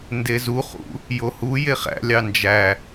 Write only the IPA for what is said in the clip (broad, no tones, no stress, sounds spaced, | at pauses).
n d e z u χ ṵ | j o h u j e χ æ̰ lʲ ɑ n d͡ʒ æ